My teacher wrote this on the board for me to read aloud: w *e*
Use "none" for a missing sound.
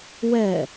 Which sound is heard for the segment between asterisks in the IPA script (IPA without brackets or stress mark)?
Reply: ɛ